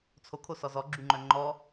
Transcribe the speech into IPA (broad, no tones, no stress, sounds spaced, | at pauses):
t͡sʰ o kʰ o s ɔ z ɔ ɡ͡ǁ y ŋ͡ǃ œ ŋ͡ǃ ɔ